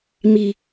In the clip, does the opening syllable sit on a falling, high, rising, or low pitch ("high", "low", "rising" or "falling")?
low